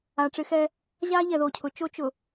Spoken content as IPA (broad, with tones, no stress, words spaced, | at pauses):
a˨ʈ͡ʂɪ˦xɛ˦ | ʑa˦ ʎɛ˨ðo˨cʰʊ˨˦ t͡ʃo˦ t͡ʃʊ˨